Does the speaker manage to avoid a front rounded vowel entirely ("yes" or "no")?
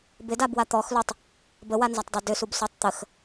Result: no